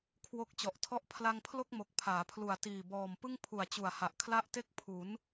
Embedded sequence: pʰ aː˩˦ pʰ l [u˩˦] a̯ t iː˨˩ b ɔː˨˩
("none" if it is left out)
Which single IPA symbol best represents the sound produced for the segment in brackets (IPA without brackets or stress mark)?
u˨˩